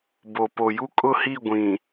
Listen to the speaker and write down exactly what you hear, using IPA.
b o˨ p o˨ j u˦ kʼ ʊ˦˨ h i˦˨ ɡʷ ĩ˨

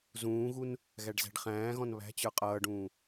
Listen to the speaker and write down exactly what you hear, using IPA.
z ũː ɣ u n | ɣ æ ɖ z æ̤ ɖ χ æ̃ː ɣ ɔ̃ n β æ̤ t͡ɕ ə˞ qʼ ʌː ɖ ũː

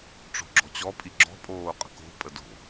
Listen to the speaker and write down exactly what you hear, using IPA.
ʈ͡ʂ o̤ ɡ͡ǁ ɔ̤ t͡ɕ ɔ pʼ i ɡ͡ǁ ɔ̤ pʼ oː qʼ ə̤ k o̤ pʼ ə d o̤

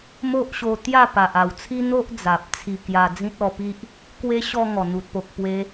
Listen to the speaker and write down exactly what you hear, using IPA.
m o˦ ʔ ɕ o˧ t̪ j a˥˧ p a˨ ʔ a˨˩ w t͡sʰ i˦ n̪ o˦ ʔ d͡z a˨ p̚ t͡sʰ i˧ k j a˧ d͡z ĩ˦ t̚ ɔ˧ p i˦ ʔ | k w e˦ ɕ ɔ˧ ŋ ɔ˨˩ n̪ u˨ t̚ p o˨ k̚ p w e˧

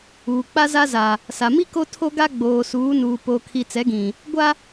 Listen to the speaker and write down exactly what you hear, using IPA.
uː˨ k͡p a˦ z a˦ z a˨ | s a˨ m i˦ k o˦ tʰ o˦ ɡ a˦ ɡ͡b oː˨ s uː˨˦ n uː˨ p o˨ kʰ i˨ t͡s ɛ˨˦ ɡ ĩ˨ | ɡʷ a˦

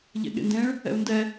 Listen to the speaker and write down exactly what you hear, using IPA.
ʎ ɛ̰ ɠ ḛ n d ẽ ɭ | ɛ̰ u̯ n d ɛ

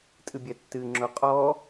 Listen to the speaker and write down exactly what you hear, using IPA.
tʼ ɨ bʲ ɛ tː ɨ ŋ͡ǁ o qʼ ɔ

